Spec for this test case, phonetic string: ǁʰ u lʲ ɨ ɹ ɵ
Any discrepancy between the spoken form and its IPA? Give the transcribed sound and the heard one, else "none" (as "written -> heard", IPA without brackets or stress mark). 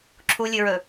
none